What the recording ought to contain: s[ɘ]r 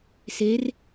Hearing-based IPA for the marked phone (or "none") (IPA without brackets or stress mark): e